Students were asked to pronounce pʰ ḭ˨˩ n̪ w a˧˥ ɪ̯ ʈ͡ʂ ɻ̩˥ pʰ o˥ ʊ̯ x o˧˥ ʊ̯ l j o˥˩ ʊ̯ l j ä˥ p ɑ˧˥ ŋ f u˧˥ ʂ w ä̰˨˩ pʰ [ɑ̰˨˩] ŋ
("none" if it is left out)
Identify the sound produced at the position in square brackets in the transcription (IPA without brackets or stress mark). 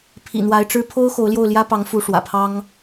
ɑ˥